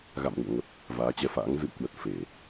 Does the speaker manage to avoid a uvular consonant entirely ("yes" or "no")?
yes